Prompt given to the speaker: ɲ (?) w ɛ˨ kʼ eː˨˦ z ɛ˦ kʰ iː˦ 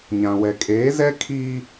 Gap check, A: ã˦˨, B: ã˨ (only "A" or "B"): B